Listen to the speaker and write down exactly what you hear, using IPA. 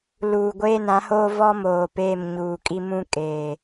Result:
l uː˨ ɡʷ eː˦ n ã˨˦ h oː˦ v ɔ˦ m oː˨ p eː˦˨ m ɲ uː˨ kʼ i˦ m ũ˦ kʼ eː˨

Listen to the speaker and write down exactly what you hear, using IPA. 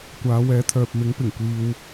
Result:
kʷ aː˨˧ w ɛː˨˧ t̪ʰ œː˨ p̚ m ɪ˨˥ ŋ p ɪ˨˩ ŋ kʷ iː˧ w

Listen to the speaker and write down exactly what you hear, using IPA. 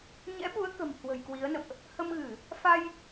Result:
ɲ ɛ̰˧˥ ɓ u˨˦ ə̯ k ə̤˨˩ m h w ə̤˨˩ j k w i˨˦ ə̯ n ə̰˧˨ m ʔ | h ə˧ m ɣ ɨ˧˩˨ | f a˧ j

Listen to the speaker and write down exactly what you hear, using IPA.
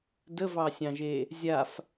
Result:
d ə v ɑ sʲ ɑ̃ ʒ e | zʲ a f

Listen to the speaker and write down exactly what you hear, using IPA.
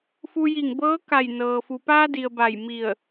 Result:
f u˧ j i˧˩ ŋ b ɤː˧˥ k a˧˩ j n ɤː˩ f u˩ p aː˧ d i˩ ə̯ b a˧˩ j m i˧˩ ə̯

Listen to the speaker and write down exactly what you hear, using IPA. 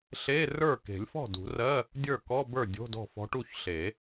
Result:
ɬ e˧˥˧ r ə˞˥˩ k e̤˨˩˦ lʲ f ɔ̤˥˩ d ṳ˨˩˦ r ɜ˧˥˧ | dʲ ə˞˥˩ k ɔ˧˥˧ b ə˞˥˩ dʲ o̤˧˥˧ d ɔ̤˥˩ f ɔ̤˧˥ ʈ u˥˩ ç ɬ e˨˩˦

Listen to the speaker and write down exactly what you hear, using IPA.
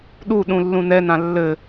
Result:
ɗ u ɗ ũ lː ũ n ɛ n ã lː ɘ

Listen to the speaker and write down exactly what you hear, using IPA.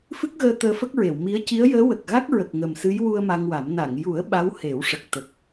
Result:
f ɨ˦˥ k̚ ɣ əː˧ t̪ əː˧ f ə˦˥ k̚ ɹ e˨˩˨ w m i˧˥ ə̯ c i˧˥ ə̯ j əː˧˥ w ə˨˩ k̚ ɣ a˦˥ k̚ ɹ ə˨˩ k̚ ŋ ə˨˩ m s ɨ˧˥ j w u˧ ə̯ m a˧ ŋ w a˨˩˦ m n a˨˩˨ ŋ j u˨˩˦ ə̯ ɓ a˧˥ w h e˨˩˦ w ʂ ə˨˩ k̚ t̪ ə˨˩ k̚

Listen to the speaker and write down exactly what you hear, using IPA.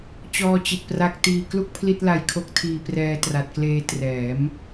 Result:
t͡ɕ ɔː˧ t͡ɕ i˨˩ t̚ p r a˦˥ k̚ t iː˧ k l u˥˩ k̚ pʰ l i˥˩ t̚ l a˧ j kʰ o˦˥ k̚ tʰ iː˧ p r ɛː˧ t r a˨˩ t̚ k l eː˧ t r ɛː˩˦ m

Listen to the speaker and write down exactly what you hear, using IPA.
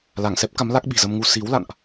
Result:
l a˧˩ ŋ s ɛ˦˥ p̚ k a˨˦ m l a˦˥ k̚ ɓ i̤˨˩ z ə˧ m ŋ u˧ s i˨˦ w l a̰˧˨ n ʔ

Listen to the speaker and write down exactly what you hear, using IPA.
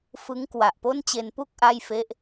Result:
f ɯ˦˥ ŋ k w a˨˩ ʔ p o˥˩ n t͡ɕ e˧ n p u˥˩ k̚ ʔ a˥˩ j f e˦˥ ʔ

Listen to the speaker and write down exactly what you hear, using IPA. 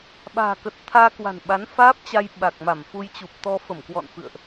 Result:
ɓ a̤ː˨˩ k ə˨˩ t̚ t̪ʰ aː˧ k w a̤˨˩ n ɓ a˨˦ n f aː˦˥ p̚ t͡ɕ a˧ j ɓ a˨˩ k̚ m a˧˩ m f u˧ j t͡ɕ u˨˩ p̚ t̪ ɔ˧ f ə˧˩ m k w ɔ̰˧˨ n f ɨ̰˧˨ ə̯ ʔ

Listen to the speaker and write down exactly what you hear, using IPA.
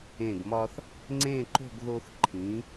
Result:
ẽ˧˩ ɡ m ɒ˧ θ | ŋ͡ǀ ẽ˥˧ ǃ o̤˥˧ ɡ ð o˧ θ ǃʰ ĩ˩˧

